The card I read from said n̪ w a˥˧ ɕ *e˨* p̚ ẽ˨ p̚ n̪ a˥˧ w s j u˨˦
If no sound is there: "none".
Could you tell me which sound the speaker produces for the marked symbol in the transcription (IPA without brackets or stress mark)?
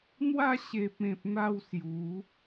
e˨